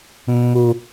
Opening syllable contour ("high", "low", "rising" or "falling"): high